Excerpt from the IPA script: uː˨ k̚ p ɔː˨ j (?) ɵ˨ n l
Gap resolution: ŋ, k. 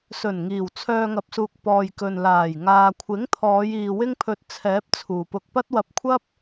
k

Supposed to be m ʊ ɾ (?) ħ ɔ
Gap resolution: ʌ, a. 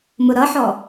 ʌ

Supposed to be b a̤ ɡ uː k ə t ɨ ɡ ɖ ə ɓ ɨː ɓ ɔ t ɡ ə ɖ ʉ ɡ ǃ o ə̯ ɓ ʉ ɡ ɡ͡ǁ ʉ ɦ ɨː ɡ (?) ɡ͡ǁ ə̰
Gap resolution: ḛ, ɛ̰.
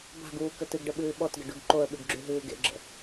ḛ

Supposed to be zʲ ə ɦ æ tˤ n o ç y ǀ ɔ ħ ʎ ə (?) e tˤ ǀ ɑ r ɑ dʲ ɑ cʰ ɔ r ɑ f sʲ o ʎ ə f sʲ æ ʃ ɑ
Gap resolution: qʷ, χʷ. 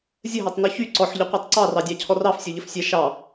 qʷ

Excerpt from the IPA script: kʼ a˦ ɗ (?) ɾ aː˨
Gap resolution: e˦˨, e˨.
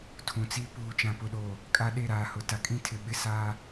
e˦˨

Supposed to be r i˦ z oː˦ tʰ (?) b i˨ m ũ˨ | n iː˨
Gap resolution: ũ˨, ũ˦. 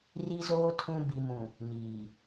ũ˦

